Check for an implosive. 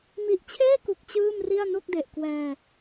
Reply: absent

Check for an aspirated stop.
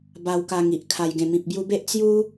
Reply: present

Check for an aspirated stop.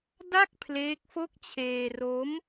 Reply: present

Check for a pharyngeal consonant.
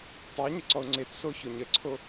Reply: absent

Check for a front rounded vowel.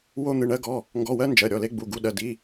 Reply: absent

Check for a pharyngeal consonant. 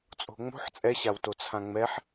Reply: present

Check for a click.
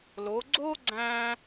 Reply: present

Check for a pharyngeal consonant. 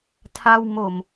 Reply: absent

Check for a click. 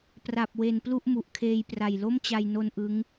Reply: absent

